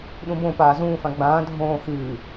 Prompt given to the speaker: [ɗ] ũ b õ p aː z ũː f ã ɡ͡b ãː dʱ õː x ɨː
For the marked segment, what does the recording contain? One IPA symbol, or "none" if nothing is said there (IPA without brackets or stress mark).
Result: ɗ